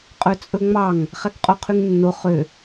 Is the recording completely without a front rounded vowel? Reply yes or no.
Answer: no